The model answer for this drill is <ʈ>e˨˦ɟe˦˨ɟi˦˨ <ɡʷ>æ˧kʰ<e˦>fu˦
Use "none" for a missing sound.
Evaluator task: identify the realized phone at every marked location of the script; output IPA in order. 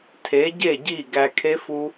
tʰ, ɡ, e˦

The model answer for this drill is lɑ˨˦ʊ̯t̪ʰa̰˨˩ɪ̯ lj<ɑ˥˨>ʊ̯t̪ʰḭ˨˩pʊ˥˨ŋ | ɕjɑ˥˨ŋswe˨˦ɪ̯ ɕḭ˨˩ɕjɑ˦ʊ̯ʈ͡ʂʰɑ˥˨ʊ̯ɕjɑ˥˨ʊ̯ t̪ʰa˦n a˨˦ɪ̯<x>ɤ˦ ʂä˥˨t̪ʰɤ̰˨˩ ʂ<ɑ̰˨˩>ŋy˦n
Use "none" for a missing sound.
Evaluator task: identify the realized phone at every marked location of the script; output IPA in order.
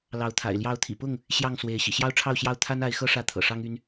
ɑ˨˦, x, ɑ˦

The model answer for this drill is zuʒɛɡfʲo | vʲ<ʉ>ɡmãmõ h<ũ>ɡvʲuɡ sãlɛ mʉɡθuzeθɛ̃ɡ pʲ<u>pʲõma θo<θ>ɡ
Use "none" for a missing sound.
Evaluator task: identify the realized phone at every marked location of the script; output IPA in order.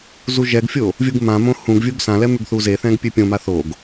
u, ũ, ʉ, none

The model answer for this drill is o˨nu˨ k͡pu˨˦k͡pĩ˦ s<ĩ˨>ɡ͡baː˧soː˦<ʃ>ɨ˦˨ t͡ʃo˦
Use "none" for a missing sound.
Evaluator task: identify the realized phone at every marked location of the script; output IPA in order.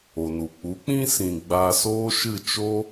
ĩ˨, ʃ

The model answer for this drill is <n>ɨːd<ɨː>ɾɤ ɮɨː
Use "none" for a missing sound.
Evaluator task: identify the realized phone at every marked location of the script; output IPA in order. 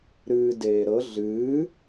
ɾ, eː

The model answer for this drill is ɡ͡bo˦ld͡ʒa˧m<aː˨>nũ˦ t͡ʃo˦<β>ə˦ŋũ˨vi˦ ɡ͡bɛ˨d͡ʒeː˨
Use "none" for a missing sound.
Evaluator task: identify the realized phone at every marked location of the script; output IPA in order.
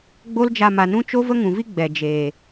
a˨, v

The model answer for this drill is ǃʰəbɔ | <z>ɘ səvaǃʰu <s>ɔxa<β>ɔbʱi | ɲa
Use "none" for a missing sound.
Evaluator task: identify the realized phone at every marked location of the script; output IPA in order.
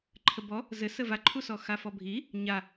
z, s, f

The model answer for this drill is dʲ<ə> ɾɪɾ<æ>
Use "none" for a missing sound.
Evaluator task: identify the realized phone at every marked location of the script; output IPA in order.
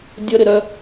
ə, œ

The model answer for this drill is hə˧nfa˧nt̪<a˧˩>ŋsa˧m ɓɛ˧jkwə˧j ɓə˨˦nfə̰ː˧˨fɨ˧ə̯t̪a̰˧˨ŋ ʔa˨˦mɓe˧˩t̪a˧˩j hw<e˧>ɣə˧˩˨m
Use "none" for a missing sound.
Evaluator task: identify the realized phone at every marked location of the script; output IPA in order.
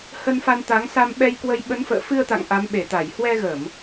a˨˦, ɛ˧

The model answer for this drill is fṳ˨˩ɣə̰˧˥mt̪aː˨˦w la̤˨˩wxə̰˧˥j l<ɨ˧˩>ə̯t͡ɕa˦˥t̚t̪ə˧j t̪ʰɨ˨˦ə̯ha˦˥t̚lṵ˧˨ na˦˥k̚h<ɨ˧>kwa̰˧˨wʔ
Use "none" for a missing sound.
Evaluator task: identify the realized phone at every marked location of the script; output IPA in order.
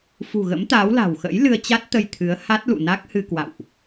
ɨ˧, ɨ˧

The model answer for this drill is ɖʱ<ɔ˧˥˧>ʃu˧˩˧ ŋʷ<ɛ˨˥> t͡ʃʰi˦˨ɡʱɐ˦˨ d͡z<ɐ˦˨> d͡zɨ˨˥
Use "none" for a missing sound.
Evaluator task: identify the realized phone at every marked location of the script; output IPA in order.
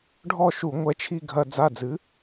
ɔ˦˨, ɛ˨˥, a˦˨

